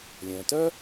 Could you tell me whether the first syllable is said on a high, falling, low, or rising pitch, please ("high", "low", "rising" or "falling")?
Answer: low